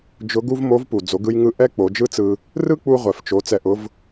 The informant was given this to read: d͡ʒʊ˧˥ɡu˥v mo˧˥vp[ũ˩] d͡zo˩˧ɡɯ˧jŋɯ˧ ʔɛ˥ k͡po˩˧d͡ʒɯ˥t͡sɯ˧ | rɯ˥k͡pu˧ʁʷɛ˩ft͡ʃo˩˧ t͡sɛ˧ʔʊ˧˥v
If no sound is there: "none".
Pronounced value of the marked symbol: u˩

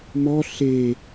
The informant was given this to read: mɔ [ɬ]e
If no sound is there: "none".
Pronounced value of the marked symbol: ɬ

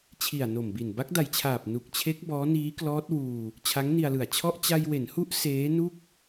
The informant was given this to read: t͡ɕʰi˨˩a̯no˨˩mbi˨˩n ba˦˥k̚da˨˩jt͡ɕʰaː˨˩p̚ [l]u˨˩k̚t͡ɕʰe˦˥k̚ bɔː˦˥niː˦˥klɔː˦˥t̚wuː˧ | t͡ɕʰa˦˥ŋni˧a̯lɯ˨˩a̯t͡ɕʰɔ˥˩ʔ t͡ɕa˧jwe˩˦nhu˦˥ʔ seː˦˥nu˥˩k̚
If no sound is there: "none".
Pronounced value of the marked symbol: n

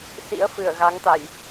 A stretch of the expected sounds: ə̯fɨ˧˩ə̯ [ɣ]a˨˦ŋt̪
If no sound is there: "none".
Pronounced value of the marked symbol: ɣ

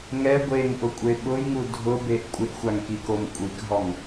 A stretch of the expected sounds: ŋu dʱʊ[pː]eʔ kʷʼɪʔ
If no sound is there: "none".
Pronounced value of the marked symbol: b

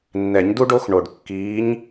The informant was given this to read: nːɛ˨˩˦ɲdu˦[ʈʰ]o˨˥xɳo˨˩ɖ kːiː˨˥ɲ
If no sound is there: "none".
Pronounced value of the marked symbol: ɖ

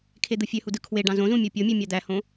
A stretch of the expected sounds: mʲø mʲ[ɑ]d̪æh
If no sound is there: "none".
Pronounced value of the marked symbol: ɑ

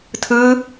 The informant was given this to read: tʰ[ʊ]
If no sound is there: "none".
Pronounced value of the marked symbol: ɯ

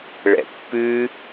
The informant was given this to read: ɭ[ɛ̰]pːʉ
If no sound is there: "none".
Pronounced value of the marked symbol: ɛ̰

